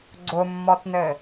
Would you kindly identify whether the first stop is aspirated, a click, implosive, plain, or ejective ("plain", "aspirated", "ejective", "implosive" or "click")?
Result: click